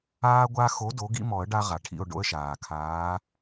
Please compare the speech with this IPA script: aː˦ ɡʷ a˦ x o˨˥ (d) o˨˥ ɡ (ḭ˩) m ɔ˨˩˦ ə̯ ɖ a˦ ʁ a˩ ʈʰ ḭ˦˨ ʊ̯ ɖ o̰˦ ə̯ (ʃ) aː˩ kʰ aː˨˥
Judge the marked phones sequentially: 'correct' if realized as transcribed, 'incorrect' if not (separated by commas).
correct, incorrect, correct